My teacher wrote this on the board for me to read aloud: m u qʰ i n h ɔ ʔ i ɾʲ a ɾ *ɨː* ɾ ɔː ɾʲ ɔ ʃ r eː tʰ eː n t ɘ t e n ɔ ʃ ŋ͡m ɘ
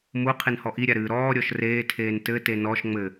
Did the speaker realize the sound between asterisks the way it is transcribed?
yes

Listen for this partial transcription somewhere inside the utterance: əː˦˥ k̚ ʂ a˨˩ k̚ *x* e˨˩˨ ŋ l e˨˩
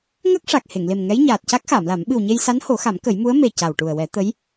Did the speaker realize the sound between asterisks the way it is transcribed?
no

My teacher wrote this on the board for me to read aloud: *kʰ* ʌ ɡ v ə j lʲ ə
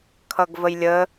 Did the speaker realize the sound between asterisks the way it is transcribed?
yes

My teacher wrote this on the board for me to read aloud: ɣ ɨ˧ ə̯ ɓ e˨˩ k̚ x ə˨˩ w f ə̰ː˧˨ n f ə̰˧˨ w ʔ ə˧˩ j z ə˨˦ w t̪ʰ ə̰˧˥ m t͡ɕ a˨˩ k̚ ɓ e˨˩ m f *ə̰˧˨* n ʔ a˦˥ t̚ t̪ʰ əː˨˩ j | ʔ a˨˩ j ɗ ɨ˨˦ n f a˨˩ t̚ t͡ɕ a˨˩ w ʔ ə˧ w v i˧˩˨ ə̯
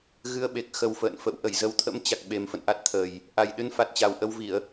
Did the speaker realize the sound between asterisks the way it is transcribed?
yes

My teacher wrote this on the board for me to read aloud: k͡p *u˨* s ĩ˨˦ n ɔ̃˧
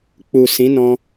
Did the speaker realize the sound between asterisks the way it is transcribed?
yes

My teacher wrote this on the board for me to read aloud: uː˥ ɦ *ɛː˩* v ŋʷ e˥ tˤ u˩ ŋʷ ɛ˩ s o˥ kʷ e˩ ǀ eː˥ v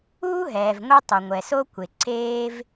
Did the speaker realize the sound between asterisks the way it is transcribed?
yes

